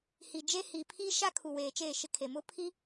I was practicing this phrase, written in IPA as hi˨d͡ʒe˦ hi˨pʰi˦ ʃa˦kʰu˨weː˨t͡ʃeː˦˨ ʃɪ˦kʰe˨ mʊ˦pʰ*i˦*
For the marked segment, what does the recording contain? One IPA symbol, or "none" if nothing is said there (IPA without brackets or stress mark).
i˦